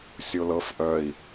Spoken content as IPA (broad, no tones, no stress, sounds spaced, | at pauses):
sʲ o l ɤ f ʔ œ i̯